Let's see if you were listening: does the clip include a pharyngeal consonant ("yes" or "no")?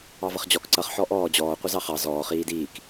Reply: yes